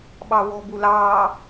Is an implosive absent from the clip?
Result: no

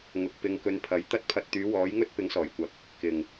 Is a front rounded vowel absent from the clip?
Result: no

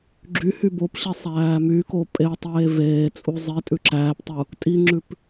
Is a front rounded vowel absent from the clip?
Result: no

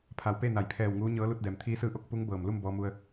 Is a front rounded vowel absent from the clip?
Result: yes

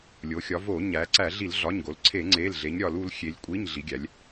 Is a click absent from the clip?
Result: no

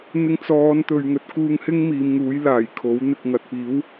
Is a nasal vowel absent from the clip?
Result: yes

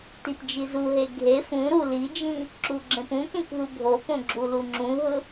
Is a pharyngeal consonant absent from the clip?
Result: yes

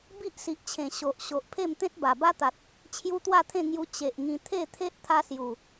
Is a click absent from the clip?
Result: yes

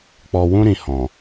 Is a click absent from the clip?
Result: yes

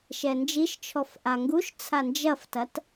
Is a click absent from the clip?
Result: yes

